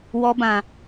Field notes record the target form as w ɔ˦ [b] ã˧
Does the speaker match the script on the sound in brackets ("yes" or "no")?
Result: yes